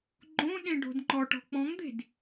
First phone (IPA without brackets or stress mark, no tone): ɡ͡ǃ